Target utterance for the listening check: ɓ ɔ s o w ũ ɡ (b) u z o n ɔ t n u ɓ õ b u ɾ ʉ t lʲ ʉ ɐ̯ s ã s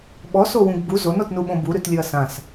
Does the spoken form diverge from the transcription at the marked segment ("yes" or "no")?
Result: no